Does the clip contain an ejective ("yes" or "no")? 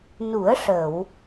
no